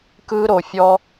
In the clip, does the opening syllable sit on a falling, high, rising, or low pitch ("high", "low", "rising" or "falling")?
high